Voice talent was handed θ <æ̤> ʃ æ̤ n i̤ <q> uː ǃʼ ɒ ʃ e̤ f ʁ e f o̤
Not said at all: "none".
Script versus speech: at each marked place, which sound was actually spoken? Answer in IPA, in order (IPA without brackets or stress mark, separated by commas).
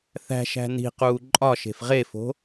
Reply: æ̤, q